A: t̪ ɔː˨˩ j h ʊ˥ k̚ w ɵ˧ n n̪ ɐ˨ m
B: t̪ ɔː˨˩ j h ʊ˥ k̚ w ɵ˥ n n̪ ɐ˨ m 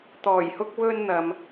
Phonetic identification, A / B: B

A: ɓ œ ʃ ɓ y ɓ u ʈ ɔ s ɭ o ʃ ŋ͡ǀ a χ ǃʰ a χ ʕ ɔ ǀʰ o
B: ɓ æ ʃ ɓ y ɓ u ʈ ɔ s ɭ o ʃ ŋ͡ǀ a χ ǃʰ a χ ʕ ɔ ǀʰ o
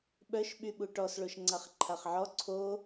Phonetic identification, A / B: A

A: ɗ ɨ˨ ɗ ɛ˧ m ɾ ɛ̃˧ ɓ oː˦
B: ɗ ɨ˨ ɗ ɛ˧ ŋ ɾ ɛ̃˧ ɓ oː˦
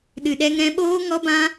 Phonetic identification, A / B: B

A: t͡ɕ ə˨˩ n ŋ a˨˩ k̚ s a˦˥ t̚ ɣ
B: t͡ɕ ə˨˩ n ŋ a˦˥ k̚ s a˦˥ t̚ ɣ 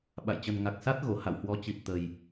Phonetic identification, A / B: A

